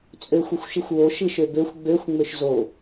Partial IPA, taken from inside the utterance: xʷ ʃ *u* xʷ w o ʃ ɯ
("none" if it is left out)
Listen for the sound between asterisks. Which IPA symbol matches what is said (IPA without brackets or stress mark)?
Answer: ɯ